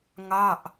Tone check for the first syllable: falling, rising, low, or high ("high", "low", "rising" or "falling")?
falling